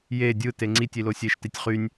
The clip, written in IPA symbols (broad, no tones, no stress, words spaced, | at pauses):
je dʲɯ teŋ͡ǀitʲ ilosʲeʃ titʲχynʲ